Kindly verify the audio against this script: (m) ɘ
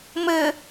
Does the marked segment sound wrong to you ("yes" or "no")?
no